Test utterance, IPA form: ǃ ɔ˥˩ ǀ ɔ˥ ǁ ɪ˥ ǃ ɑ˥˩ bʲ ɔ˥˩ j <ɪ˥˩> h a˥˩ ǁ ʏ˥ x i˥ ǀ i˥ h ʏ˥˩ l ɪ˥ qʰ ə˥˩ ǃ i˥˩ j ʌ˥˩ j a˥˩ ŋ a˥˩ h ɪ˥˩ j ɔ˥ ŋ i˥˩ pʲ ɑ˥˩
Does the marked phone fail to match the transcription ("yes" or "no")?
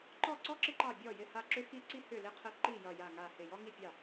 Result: no